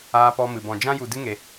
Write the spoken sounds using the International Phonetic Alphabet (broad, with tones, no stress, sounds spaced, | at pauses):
aː˦ p ɔ˦ m ɨ˧ b ɔ̃˧ d͡ʒ ã˦ j u˧ d ɨ˦ ŋ e˧